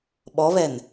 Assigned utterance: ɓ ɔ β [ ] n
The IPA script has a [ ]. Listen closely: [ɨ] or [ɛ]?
ɛ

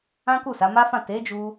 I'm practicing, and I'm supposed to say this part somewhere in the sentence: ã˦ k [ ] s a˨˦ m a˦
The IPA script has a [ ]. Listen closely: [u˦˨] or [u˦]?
u˦˨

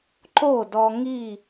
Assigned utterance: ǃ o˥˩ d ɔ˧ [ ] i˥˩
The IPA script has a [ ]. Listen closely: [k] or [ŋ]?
ŋ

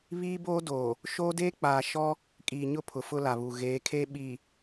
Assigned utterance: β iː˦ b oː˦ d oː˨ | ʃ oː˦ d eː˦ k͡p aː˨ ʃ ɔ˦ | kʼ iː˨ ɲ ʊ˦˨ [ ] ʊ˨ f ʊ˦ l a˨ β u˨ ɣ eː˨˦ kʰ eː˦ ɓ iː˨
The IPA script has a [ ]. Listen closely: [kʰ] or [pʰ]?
pʰ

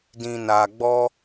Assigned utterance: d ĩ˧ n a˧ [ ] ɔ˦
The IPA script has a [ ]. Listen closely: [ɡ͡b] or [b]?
ɡ͡b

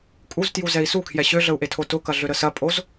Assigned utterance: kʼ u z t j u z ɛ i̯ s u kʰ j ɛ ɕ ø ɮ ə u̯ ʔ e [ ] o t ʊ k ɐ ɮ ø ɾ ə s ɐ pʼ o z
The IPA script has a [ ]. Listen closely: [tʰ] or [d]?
tʰ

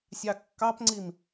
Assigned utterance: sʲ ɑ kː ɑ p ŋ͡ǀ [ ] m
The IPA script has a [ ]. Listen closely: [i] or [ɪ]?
i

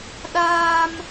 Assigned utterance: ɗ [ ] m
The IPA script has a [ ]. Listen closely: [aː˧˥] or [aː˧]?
aː˧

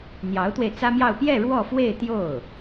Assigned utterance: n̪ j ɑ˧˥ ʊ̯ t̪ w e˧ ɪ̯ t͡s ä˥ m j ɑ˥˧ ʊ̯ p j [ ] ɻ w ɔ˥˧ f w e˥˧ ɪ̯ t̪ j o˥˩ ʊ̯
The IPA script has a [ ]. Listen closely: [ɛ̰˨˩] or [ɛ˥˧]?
ɛ˥˧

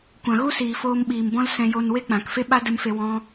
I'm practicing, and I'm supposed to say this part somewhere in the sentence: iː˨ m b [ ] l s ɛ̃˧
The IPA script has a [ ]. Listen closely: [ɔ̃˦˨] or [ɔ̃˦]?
ɔ̃˦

